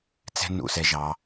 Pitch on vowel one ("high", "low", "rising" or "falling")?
high